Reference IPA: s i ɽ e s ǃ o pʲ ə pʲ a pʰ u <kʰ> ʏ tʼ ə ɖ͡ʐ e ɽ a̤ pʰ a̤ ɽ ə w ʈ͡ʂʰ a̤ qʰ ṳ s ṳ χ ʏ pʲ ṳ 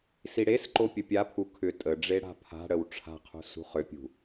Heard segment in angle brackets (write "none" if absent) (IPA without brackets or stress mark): kʰ